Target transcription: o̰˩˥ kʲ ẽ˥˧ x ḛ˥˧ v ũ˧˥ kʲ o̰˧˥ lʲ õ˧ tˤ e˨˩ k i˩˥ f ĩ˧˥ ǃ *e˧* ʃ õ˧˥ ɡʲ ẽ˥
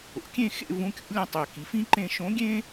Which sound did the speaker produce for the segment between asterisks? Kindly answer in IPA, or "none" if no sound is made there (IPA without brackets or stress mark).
ẽ˧